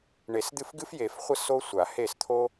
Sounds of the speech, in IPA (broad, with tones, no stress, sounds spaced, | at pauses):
ɳ e˨˩˦ s d̪ ɨ˥˩ f ɡ ɨ˥ f j e˨˩˦ f χʷ ə˥˩ s o˥ sʷ a˨˩˦ h e˥˩ s t̪ʰ o˥